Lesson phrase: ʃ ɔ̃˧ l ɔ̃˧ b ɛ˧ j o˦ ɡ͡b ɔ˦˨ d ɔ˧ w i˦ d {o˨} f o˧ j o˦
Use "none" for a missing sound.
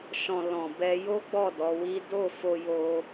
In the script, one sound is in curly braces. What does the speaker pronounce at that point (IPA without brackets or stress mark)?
o˦˨